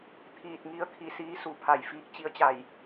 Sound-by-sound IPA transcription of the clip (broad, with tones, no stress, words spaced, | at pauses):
t̪ʰiː˧˩t̚ŋi˧ə̯kʰi˧˩ siː˧˥su˩pʰa˧˩j fiː˧˥k̚t͡ɕi˧˥ə̯t͡ɕa˧˩j